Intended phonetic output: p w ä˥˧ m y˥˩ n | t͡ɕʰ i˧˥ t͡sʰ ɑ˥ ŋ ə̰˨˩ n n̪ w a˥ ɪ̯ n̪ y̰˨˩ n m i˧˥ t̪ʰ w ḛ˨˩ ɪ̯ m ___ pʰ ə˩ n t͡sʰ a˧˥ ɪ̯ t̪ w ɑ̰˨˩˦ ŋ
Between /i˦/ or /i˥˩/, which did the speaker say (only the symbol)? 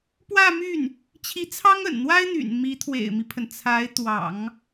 i˦